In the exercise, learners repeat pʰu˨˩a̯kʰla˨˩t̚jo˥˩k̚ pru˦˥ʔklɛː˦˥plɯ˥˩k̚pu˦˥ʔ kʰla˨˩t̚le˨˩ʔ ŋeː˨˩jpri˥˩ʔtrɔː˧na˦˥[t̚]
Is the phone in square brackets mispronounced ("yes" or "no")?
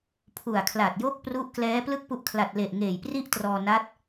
no